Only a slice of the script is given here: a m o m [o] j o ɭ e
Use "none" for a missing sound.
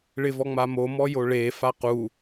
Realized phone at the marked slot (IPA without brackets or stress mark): ɔ